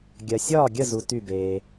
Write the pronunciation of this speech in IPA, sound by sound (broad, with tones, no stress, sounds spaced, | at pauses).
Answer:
ɡʲ ɜ˨ sʲ ɒː˥˨ ɡʲ ə˥˨ z u˨ t y˥˨ b eː˨